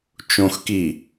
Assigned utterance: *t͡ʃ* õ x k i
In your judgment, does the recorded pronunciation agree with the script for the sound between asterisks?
yes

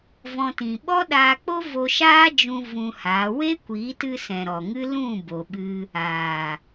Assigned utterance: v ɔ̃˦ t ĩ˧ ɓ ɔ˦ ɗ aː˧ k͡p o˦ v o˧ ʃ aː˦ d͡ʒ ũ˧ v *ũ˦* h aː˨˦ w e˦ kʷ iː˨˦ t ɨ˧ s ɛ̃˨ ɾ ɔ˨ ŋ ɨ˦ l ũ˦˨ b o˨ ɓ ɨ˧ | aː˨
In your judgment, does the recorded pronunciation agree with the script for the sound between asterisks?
no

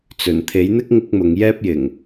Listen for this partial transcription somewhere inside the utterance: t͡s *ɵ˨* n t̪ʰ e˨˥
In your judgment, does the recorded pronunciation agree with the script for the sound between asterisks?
no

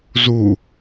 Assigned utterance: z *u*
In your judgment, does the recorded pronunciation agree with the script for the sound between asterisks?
yes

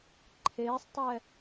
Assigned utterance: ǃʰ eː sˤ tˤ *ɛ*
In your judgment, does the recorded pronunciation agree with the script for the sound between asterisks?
yes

